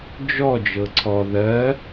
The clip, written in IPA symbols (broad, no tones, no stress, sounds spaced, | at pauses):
d͡ʒ ɔ d͡ʒ ɤ ǀʰ ɔ ð ɜ